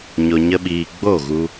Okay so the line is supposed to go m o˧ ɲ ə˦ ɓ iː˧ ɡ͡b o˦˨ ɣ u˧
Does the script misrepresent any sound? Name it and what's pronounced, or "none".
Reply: m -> ɲ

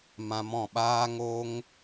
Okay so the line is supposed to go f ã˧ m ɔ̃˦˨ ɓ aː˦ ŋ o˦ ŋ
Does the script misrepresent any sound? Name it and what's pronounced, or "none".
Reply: f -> m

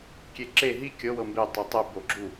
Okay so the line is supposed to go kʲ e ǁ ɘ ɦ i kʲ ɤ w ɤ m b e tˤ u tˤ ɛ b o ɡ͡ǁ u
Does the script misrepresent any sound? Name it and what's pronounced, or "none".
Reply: ɘ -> e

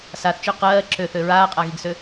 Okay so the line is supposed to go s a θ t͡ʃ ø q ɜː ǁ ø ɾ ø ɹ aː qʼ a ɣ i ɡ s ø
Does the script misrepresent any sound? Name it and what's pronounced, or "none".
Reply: ɾ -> θ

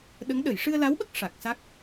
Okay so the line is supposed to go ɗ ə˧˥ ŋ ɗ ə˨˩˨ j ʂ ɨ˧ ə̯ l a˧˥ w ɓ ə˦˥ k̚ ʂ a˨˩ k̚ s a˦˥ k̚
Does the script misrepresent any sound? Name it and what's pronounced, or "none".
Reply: none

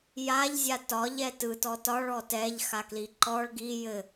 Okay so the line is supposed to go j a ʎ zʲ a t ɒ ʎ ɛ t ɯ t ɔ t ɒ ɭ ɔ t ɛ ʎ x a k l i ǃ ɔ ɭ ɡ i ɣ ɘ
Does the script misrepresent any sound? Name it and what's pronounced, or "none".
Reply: ɣ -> j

